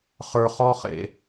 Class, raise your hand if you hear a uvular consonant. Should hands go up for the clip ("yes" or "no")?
yes